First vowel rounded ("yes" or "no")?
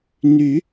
yes